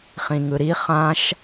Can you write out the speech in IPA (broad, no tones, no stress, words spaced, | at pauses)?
χĩŋɯɾi χãʃ